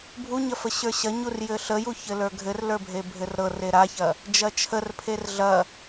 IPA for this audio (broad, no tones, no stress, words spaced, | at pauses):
bʱuɲɐfə ɕə˞ɕɐ ɲurjɘɬəju çɘlə˞ɡʱɘr lə˞bʱebʱɘrɾɤr eɾaçɐ | d͡ʒɐt͡ʃʰər pʰerɮɐ